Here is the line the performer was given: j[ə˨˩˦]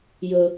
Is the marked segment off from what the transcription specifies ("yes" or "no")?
yes